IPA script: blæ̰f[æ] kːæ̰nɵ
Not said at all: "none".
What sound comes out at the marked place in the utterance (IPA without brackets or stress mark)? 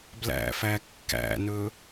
æ